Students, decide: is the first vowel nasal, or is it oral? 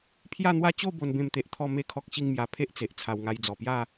oral